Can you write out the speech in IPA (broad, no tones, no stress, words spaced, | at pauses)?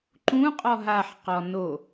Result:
ǃũqʼɔ ɦaħqɔ no